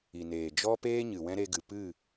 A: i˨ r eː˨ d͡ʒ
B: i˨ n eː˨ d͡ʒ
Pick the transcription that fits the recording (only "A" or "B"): B